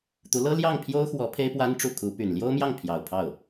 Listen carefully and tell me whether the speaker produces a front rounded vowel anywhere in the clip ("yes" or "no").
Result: yes